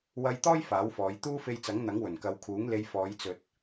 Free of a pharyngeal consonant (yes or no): yes